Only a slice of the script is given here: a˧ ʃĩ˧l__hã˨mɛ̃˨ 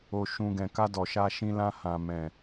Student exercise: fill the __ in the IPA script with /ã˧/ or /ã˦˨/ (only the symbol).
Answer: ã˧